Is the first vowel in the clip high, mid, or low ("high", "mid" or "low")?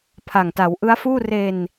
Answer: low